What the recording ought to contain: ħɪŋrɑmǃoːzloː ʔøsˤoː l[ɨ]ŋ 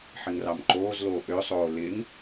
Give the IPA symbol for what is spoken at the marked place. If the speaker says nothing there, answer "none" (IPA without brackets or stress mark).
ɪ